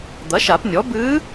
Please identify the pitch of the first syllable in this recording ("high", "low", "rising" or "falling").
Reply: rising